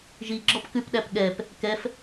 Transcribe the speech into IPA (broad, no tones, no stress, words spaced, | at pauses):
ʒiɡ͡ǁɔp kʉpɗæp ɠɛp | kɛf